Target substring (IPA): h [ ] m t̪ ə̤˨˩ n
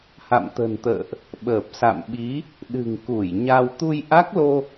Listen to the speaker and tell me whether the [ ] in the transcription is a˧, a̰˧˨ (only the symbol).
a̰˧˨